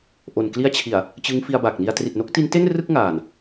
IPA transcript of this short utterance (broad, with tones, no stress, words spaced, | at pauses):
ʔo˨˩nkli˦˥a̯t͡ɕʰi˨˩a̯ | t͡ɕɯ˦˥ŋfi˧a̯ba˨˩k̚ni˧a̯ tri˨˩t̚no˦˥k̚ti˦˥nte˥˩n rɯ˥˩k̚ŋaː˨˩n